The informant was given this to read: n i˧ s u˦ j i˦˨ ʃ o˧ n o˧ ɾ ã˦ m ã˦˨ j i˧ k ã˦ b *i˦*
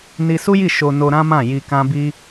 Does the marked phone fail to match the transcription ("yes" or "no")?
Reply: no